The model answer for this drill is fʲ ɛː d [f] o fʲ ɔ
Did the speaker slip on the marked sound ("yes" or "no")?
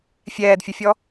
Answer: yes